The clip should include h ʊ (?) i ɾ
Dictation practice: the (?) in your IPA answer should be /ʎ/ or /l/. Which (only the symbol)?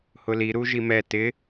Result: l